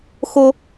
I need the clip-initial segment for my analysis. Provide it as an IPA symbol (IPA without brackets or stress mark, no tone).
x